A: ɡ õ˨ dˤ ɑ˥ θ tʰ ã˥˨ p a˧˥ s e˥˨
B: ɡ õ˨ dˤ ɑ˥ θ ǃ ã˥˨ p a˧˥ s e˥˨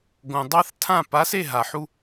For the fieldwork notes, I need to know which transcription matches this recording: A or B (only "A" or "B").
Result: A